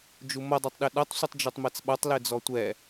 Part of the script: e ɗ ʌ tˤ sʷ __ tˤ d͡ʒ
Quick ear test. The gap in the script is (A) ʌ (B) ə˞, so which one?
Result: A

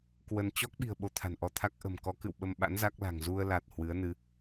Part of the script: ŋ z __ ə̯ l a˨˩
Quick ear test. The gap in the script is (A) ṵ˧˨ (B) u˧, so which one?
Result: B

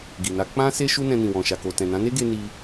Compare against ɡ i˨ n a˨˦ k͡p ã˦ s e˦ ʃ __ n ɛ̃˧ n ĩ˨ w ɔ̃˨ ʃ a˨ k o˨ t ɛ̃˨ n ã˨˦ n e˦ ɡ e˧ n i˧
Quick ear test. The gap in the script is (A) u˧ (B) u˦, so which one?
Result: B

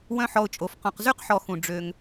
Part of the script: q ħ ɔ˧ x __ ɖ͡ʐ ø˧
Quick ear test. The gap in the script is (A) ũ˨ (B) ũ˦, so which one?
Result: A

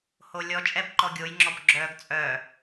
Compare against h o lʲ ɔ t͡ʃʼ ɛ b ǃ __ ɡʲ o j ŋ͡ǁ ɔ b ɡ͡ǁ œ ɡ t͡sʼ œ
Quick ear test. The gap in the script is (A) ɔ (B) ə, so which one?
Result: A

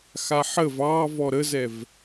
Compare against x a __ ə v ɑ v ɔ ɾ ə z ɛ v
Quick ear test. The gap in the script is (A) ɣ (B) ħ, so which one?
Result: B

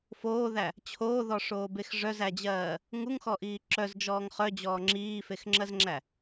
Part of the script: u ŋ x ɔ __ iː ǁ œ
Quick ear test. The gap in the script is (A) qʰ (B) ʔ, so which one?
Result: B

